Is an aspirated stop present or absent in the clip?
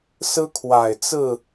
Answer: present